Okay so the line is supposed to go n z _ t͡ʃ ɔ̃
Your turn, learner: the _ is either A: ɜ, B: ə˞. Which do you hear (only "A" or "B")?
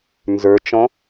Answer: B